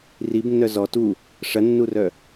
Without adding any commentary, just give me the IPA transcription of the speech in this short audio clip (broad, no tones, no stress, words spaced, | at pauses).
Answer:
ribnːœ zɔ tu | ʂɐnːurœ